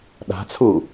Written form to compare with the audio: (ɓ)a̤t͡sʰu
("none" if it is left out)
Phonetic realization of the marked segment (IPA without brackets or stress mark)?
ɗ